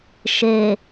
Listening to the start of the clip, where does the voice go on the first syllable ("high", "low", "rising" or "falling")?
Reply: low